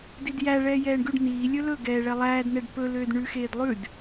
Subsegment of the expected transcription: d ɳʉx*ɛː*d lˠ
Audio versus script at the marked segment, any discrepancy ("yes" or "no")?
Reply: yes